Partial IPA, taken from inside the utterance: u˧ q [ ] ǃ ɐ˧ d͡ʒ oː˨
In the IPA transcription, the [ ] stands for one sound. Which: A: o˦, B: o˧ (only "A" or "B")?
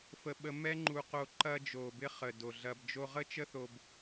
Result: B